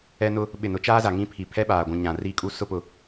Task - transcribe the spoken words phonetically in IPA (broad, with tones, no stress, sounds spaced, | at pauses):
ɛ˦ n ʊ˦ | ɓ ɪ˦˨ n ʊ˦ t͡ʃ aː˦ z a˨ ŋ ĩ˦ pʰ i˨ pʰ ɛ˦ ɓ aː˨ ɡʷ ũ˨ ɲ ã˨ r i˦˨ kʼ u˦ s ʊ˦ p ʊ˨